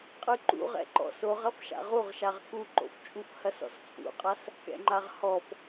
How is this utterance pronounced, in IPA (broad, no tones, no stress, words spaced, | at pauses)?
qʼɨǃṵ ʁɛ̰ǃɔ̰soʁɐf ʃa̰ʁuʁʃaʁ kuǃo̰ft͡ʃʼuf hɐsɔ̰st͡sʼṵqʼas | kɛ̰ŋ͡ǃaʁhɔf